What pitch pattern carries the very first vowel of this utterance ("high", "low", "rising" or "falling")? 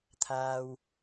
low